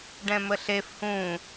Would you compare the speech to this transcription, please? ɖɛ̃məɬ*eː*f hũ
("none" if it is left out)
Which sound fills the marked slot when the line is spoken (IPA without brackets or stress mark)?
e